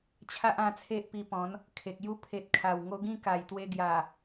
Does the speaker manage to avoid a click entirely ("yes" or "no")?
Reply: yes